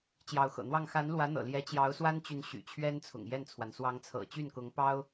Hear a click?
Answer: no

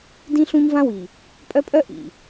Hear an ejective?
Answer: yes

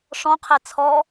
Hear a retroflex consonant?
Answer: yes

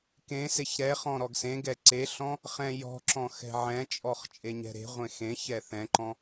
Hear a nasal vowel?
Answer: yes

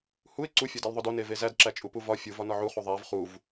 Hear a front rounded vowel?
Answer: no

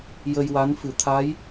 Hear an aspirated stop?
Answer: yes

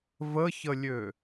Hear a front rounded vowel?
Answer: yes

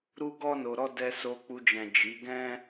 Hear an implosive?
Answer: no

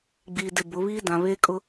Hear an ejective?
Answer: yes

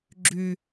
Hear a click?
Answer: yes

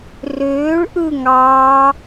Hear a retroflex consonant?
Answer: yes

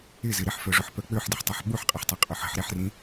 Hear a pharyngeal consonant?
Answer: yes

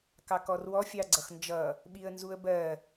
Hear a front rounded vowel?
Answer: no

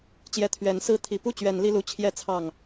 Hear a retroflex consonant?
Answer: no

